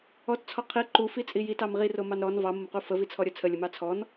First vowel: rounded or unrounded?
rounded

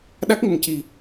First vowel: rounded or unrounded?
unrounded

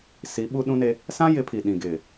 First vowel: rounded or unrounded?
unrounded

